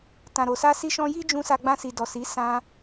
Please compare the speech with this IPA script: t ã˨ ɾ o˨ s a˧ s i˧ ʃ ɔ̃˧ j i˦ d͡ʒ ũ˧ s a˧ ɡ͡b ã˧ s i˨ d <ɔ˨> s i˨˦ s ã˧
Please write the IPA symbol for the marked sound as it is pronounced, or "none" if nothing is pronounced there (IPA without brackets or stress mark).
ɔ˨